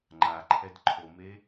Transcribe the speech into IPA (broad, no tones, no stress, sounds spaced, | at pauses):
ŋ͡ǃ a ǃʰ ɛ d ǃʰ o m e